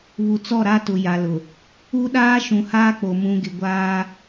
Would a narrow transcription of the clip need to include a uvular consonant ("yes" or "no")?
no